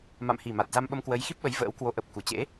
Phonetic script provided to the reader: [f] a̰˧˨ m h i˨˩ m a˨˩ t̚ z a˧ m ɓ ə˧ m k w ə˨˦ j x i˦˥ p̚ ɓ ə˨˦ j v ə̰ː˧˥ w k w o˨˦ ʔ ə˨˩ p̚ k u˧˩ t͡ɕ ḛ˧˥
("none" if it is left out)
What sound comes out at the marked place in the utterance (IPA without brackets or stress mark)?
m